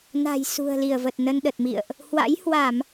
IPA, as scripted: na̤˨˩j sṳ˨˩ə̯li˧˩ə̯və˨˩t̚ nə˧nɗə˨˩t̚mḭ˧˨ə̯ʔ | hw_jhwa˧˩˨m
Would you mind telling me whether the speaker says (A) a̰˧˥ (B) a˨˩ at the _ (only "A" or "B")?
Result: A